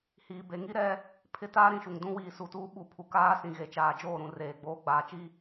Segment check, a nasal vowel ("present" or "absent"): present